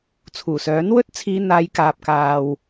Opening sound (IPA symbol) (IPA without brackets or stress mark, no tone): t͡sʰ